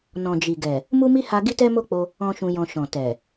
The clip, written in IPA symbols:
n ɔ̃˨ d͡ʒ i˨ ɡ ɛ˨ | m u˦ m i˦ h a˧ ɡ i˦ t ɛ˦ m o˦ k͡p o˧ | ɔ̃˦ ʃ ũ˧ j ɔ̃˧ ʃ ɔ̃˨ t ɛ˨

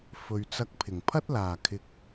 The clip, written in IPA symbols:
f ɵ˨ ɥ t͡s ɐ˧ k̚ pʰ ɪ˨˩ ŋ pʰ ɐ˥ t̚ l aː˨˩ kʰ ɪ˨ k̚

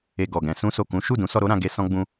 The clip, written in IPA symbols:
e˧ ɡ ɔ˨ ɡ ɛ̃˧ s ũ˧ s o˨ k ũ˨˦ ʃ u˦˨ d ũ˨˦ s ɔ˧ ɾ o˦ ɾ ã˧ ɡ e˦ s ɔ̃˦ ɡ͡b ũ˦

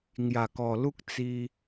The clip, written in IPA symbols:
ŋ j a˨˩ k ɔ˨˩ l u˦ k̚ t͡s i˧

